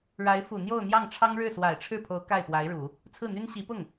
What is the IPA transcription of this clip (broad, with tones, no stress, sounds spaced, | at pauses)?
ɻ a˧˥ ɪ̯ f u˨˩ n̪ j o˥˧ ʊ̯ n̪ j ɑ˥˩ ŋ ʈ͡ʂʰ ɑ˥ ŋ ɻ ɻ̩˥˩ s w a˨˩ ɪ̯ ʈ͡ʂʰ ɻ̩˥˩ pʰ o˧˥ ʊ̯ k a˥˩ ɪ̯ p w a˧˥ ɪ̯ ɻ u˨˩˦ | t͡sʰ ɹ̩˥˩ n̪ y˥ n ɕ i˧˥ p ʊ˥˩ ŋ